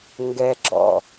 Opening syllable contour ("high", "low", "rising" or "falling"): high